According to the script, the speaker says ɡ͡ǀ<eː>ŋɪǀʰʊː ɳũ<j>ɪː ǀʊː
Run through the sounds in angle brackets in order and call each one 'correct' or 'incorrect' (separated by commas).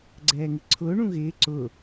incorrect, incorrect